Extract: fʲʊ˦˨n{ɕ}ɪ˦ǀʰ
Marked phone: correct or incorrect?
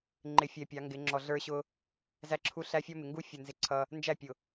incorrect: z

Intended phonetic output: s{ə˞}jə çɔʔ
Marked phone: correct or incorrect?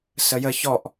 incorrect: ə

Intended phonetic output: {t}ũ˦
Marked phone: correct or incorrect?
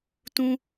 correct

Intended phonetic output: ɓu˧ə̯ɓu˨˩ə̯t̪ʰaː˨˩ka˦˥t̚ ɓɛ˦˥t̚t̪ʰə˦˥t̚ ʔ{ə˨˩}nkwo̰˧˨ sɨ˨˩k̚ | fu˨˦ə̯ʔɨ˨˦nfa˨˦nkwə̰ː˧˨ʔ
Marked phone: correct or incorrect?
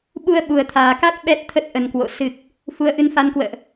correct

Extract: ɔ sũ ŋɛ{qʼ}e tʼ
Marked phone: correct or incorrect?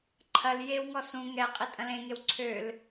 correct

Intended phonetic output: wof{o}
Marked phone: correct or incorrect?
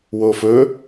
incorrect: ɵ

